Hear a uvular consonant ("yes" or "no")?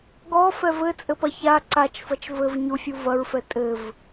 no